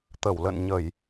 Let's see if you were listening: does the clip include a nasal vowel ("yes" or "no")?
no